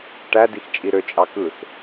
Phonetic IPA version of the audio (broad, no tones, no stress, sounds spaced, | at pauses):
ʈ æ d i x t͡ʃʼ i ɾ ø t͡ʃʼ ɑ k ɯ s